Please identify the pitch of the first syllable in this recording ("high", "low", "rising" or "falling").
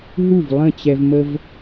falling